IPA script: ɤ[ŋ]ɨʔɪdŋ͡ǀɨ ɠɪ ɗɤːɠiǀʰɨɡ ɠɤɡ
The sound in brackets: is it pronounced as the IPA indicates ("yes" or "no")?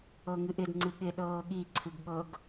yes